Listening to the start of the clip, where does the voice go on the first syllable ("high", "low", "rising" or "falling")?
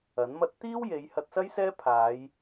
rising